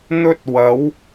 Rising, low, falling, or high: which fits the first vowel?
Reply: high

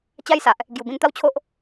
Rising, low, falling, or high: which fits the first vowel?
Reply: high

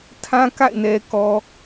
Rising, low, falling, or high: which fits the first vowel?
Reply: high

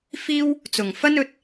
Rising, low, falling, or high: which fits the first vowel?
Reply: high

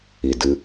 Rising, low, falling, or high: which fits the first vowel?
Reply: low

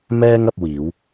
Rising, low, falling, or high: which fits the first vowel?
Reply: high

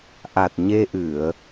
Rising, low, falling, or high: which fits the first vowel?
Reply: low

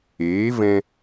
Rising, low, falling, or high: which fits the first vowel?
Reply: rising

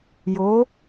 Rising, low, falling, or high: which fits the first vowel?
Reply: rising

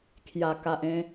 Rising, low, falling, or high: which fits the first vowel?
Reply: low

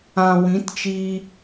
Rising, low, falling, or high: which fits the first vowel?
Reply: low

